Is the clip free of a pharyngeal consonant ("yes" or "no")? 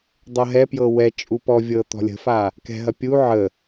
no